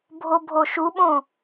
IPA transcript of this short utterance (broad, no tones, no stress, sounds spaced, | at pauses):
bʱ o bʱ o ʃ u ɓ õ